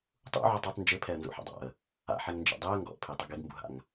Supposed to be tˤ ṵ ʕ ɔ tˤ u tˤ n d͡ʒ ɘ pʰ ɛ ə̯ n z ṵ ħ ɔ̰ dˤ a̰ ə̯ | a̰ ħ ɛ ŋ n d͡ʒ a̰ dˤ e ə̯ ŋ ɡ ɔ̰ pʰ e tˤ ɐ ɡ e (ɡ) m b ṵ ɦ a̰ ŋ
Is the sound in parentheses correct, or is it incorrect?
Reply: correct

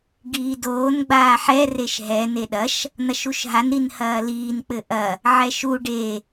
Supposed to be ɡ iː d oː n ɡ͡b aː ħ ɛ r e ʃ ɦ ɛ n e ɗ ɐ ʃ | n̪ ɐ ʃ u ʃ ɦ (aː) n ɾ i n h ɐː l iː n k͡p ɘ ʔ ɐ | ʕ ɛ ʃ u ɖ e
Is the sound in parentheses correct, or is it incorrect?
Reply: incorrect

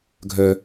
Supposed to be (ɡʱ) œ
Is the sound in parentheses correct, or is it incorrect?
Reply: correct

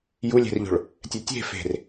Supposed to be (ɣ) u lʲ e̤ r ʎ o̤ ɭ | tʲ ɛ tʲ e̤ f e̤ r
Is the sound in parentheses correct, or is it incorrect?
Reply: incorrect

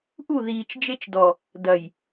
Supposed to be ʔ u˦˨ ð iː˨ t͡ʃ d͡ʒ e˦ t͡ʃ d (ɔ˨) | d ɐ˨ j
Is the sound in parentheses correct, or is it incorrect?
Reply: correct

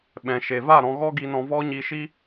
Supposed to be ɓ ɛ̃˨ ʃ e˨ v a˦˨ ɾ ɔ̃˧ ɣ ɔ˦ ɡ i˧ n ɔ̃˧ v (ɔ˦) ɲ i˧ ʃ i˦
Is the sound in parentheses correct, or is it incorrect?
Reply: correct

